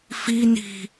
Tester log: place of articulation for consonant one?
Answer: labial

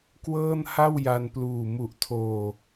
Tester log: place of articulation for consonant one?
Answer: velar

